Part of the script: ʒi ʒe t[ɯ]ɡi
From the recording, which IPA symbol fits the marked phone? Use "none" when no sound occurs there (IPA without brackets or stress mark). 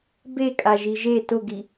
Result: ʊ